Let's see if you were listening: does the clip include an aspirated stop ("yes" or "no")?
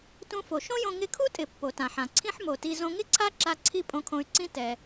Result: yes